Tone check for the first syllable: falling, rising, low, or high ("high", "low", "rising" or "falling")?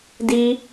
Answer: high